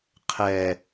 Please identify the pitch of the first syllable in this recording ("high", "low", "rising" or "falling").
low